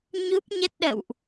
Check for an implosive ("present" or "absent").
present